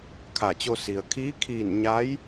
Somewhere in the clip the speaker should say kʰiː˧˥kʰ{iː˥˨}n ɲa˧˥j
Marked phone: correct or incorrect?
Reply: incorrect